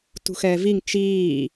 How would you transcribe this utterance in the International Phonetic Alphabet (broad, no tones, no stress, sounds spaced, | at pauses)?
t ṳ x ɛː v i ŋ t͡ʃ iː